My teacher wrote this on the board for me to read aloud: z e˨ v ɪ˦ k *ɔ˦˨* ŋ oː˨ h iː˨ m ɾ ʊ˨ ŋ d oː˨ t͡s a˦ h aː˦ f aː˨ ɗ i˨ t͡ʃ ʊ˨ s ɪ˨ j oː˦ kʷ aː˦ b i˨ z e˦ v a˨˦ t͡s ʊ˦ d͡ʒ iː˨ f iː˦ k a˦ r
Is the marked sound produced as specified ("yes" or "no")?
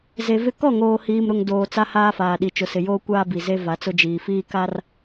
yes